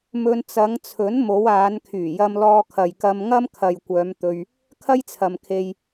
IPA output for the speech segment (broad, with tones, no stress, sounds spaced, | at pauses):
m ɵ˧ n t͡s ɐ˨˧ ŋ t͡sʰ ɵ˨˥ n m o˨˧ w aː˨˧ n kʰ yː˨˩ j ɐ˧ m l ɔː˧ kʰ ɐ˨ j k ɐ˧ m ŋ ɐ˥ m kʰ ɐ˨ j kʷ œː˨˧ m t̪ ɵ˧ ɥ | kʰ ɐ˥ j t͡sʰ ɐ˨ m kʰ e˧ j